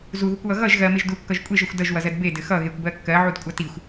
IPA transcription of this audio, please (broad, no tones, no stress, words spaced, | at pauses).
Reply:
zuðukʷwʌ ɣʌʒ ɣɜmeʒ dukːʌʒ kʷʼeʒʌxʷ dʌʒwʌzɜd bedɘ xʌɣekʷbɜ kːɜʕudkʷʼʌ tixʷ